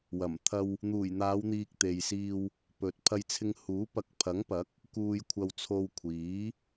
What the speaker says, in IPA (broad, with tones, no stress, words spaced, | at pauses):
wɐ˨˩mt̪ʰɐ˧w | n̪uː˨˩jn̪aː˨˧wn̪iː˨k̚ t̪e˨jsiː˧w | pɵ˨t̚ pʰɐ˧jt͡sʰɪ˧ŋhuː˨˥ pɐ˨˥k̚pʰɐ˨˥ŋpɐ˨˥k̚ | kuː˧jkʷʰɐ˧wt͡sʰo˧w kʷʰiː˨˥